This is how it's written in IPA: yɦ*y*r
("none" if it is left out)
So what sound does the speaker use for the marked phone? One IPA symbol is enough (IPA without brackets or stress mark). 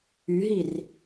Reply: i